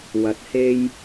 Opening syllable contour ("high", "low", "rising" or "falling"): rising